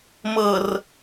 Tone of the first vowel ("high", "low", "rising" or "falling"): low